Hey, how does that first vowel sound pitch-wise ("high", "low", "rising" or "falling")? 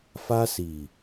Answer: high